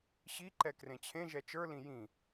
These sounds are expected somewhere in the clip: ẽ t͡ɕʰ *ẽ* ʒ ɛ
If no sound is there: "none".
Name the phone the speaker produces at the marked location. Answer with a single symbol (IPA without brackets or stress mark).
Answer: ẽ